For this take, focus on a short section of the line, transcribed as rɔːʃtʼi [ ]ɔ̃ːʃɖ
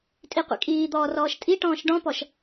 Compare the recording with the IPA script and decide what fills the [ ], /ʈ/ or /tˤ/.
ʈ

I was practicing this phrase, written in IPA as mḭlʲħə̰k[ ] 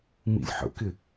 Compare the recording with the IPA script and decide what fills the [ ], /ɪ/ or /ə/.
ɪ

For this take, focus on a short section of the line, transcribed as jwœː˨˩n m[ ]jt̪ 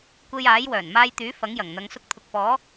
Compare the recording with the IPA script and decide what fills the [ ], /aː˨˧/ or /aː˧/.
aː˧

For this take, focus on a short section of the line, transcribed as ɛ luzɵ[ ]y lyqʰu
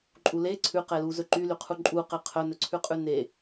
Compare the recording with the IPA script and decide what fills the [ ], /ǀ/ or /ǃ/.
ǃ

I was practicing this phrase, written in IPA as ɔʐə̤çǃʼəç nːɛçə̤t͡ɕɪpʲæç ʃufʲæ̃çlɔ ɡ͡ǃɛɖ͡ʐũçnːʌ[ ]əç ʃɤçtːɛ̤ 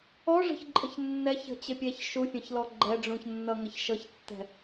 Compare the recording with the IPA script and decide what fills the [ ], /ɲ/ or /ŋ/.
ŋ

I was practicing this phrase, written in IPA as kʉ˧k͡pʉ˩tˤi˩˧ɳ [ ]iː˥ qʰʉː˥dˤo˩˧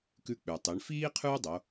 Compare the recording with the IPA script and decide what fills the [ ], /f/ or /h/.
f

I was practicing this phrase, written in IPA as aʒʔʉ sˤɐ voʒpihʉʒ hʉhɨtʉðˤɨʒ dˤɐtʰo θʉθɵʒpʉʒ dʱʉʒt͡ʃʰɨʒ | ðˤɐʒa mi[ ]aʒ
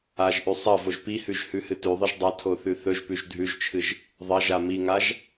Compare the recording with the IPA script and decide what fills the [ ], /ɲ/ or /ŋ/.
ŋ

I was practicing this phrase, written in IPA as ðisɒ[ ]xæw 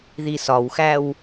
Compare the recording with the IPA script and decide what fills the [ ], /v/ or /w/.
w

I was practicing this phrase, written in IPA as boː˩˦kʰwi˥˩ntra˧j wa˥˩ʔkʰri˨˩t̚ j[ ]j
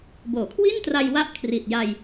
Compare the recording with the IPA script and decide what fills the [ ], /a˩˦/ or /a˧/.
a˧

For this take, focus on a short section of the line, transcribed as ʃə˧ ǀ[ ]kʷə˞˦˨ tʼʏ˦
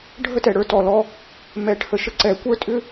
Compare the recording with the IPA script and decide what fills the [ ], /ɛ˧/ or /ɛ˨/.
ɛ˨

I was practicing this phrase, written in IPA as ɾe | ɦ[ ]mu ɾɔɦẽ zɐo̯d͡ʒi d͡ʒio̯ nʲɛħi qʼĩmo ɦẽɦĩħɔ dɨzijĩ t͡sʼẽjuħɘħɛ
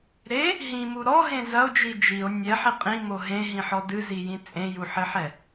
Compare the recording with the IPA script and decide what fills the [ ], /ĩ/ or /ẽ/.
ĩ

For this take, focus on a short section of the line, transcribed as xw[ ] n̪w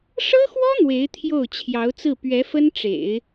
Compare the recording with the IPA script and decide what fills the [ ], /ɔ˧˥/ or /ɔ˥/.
ɔ˥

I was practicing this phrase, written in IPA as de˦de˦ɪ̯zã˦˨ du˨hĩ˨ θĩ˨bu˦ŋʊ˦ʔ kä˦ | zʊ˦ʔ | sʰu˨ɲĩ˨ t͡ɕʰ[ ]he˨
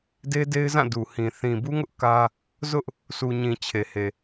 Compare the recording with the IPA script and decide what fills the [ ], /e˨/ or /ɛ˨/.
e˨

